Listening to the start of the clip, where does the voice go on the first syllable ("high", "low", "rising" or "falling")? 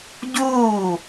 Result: falling